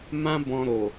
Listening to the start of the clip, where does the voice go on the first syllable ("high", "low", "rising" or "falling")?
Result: high